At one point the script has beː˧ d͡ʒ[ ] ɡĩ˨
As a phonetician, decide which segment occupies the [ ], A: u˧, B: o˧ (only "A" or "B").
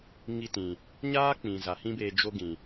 B